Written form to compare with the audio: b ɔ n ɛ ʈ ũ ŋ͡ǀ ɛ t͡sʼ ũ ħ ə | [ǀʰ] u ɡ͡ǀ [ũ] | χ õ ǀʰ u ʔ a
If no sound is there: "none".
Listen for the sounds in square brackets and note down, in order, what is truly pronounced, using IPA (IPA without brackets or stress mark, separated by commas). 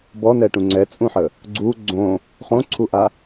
ɡ͡ǀ, õ